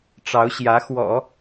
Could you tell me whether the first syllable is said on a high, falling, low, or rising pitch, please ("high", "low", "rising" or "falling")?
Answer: rising